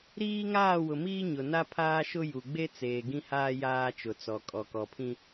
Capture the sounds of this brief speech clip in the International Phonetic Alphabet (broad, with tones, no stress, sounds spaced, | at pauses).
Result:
ɾ iː˦ ŋ aː˦˨ w ʊ˨ m iː˦ ɲ ʊ˨ n a˦ pʰ aː˦ ʃ ʊ˦ j u˨ ɡ͡b e˦ t͡s eː˨ ɡ ĩ˦ h aː˦ j aː˦ t͡ʃ ʊ˨ t͡s ɔ˨ kʼ ɔ˨ k ɔ˨ pʰ ĩ˦